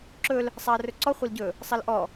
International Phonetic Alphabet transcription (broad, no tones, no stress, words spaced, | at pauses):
ǁɵl | sˤaɐ̯rɵǀɔ χʷɐlɟɵ | sˤɐlʔɔ